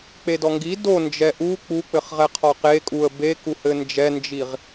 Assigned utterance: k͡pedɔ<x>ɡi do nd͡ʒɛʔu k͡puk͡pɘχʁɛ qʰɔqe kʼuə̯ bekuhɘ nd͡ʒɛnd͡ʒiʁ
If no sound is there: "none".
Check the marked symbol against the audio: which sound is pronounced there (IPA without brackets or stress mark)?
ŋ